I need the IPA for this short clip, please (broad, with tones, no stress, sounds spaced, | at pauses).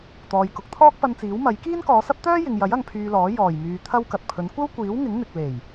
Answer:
t̪ ɔː˨ j k ʊ˨˥ k̚ t̪ʰ ɔː˥ k̚ p ɐ˧ n t͡s iː˨˥ w m ɐ˨˥ j k iː˥ n k ɔː˨˧ s ɐ˥ p̚ t̪ œː˥ j ɪ˨ ŋ j ɐ˨˥ j ɐ˧ ŋ pʰ yː˧ l ɔː˨˥ j ɔː˨˩ j m yː˨ t̪ʰ ɐ˥ w k ɐ˨ t̚ pʰ ɵ˨˥ n kʷ ɐ˥ w kʷ iː˨˥ w ŋ ɪ˨˥ ŋ n̪ ɪ˨ k̚ l e˨˩ j